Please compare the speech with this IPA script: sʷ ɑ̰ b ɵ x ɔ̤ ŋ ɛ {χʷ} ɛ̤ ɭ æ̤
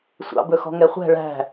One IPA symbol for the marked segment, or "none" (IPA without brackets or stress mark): χʷ